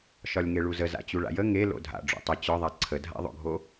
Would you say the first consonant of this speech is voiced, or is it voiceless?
voiceless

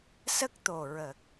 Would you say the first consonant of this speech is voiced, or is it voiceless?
voiceless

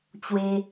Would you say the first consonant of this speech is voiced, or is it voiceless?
voiceless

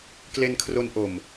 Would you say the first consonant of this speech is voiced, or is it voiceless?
voiceless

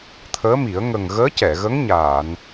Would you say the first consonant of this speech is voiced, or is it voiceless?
voiceless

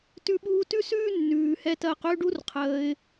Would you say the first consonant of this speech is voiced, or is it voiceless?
voiceless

